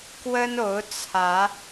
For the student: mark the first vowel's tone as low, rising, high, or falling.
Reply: high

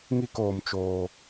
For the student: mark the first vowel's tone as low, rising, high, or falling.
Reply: falling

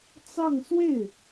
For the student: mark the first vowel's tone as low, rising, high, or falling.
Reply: falling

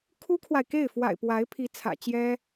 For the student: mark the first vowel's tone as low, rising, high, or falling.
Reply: high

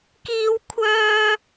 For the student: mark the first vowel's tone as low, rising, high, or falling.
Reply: high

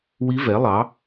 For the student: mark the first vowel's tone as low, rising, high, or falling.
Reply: rising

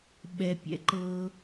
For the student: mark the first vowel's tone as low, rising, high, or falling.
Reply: low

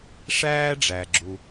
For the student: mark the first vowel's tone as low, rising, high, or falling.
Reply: high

